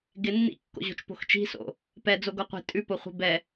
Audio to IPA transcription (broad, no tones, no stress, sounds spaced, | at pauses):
ɡ ɪ nː ḭ kː o̰ ʑ o̤ t͡ʃ p o̤ x t͡ʃ i̤ s o̰ | p ɛ d͡z o ɡ o qʷ i̤ tʼ ʉ p o χʷ i̤ b ɛ